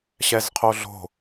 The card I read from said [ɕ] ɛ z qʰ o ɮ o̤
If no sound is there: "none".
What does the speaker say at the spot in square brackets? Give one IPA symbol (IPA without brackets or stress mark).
ɕ